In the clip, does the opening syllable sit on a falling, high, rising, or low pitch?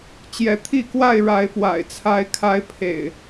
rising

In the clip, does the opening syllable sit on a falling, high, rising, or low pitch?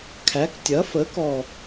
rising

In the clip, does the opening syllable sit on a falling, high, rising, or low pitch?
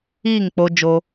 falling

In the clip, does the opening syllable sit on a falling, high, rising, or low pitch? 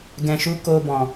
low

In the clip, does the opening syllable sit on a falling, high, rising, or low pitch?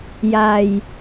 low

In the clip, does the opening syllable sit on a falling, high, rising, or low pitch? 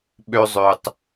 high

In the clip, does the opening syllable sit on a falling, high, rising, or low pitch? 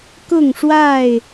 falling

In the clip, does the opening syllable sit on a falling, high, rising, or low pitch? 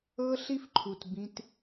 high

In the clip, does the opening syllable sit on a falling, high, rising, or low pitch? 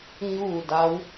falling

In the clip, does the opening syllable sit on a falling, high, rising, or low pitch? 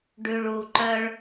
low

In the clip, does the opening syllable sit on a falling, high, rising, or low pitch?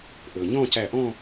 low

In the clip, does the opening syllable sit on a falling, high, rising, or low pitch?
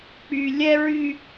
low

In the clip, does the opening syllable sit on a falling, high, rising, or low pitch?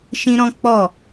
high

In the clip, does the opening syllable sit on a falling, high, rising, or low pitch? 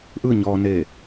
falling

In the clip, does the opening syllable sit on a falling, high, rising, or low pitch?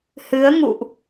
rising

